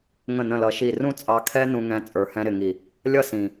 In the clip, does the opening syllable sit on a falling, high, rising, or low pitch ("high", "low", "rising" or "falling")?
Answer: falling